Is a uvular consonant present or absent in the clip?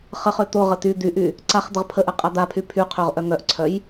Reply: present